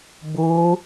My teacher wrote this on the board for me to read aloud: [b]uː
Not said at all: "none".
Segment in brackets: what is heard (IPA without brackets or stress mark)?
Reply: b